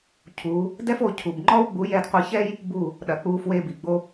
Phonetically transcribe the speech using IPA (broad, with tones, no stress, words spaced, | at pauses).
cʰu˨˦ | dɛ˦fo˧cʰu˨bŋ͡ǃɔ˦w ɡ͡bu˨˦jɛ˧dqʷɤ˧çɛ˦j | bu˦˨ | ɗɐ˨k͡pu˨˦fwe˧bi˨ ɡ͡bo˧